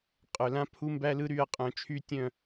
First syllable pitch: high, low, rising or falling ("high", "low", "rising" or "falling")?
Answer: low